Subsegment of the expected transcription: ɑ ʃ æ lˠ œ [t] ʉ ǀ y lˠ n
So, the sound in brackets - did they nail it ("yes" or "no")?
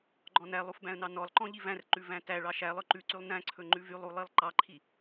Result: no